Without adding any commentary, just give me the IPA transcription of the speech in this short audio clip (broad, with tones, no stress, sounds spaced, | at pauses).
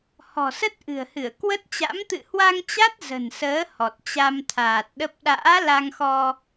h ɔ̤˨˩ s ə˦˥ t̚ ʔ ɨ̤˨˩ ə̯ h ɨ˧˩ ə̯ k w ə˦˥ t̚ t͡ɕ a̰˧˥ m t̪ ɨ̰˧˨ h w a˧ ŋ t͡ɕ a˦˥ t̚ z ə̤˨˩ n s əː˨˦ h ɔ˨˩ t̚ t͡ɕ a˧ m t̪ʰ aː˨˩ t̚ ɗ ə˦˥ p̚ ɗ a̰ː˧˥ l a˧ ŋ x ɔ˧